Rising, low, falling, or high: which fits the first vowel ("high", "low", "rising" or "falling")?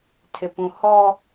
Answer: low